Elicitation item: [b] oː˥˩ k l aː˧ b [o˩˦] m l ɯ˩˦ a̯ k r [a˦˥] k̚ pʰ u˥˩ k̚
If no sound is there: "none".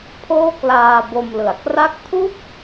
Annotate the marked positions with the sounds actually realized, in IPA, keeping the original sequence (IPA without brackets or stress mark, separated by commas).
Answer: pʰ, o˧, a˦˥